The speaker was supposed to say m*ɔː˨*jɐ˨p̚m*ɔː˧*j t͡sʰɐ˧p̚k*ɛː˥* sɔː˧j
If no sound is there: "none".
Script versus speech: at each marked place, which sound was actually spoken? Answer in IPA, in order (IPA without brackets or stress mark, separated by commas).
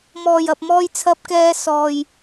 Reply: ɔː˨, ɔː˧, ɛː˧